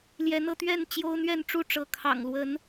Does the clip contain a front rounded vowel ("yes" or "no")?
no